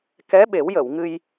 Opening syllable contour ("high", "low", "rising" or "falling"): rising